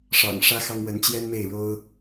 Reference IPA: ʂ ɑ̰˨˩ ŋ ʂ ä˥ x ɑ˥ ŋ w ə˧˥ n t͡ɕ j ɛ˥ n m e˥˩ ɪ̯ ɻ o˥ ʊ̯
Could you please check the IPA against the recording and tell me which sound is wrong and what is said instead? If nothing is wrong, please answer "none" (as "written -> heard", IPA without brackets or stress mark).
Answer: none